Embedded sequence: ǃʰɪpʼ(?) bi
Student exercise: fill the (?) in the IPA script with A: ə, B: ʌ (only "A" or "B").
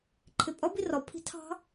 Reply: B